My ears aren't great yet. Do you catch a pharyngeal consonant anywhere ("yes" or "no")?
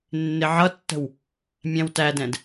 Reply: yes